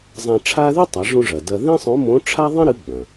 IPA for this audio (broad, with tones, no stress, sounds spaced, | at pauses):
zˤ ã˧ ʈ͡ʂʰ a˥ ð ɨ˥ tˤ a˩˧ ʐ ũ˧ ʐ ɐ˩ d ɐ˧ ð ĩ˥ sˤ õ˧˥ m õ˧˥ ʈ͡ʂʰ a˥ ðˤ ĩ˥ ɾ ɨ˧˥ ɡ͡b ɐ̃˩